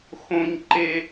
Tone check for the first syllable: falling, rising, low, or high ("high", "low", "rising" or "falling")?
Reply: high